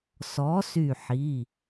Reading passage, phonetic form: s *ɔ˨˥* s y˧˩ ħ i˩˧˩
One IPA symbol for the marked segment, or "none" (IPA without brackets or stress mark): ɔ˨˥